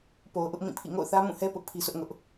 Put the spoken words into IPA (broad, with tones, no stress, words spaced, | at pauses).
po˨ʊ̯ʔʊ˦ʔ mĩ˦˨pʰḭ˦˨ ŋo̰˦˨ʊ̯θä˦mũ˦˨hɛ˦ pʊ˦ʔpʰi˦sʰʊ˦ʔŋʊ˦ʔ